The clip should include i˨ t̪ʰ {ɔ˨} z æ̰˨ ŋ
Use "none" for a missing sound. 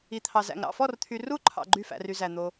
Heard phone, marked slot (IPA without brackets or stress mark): ɑ˨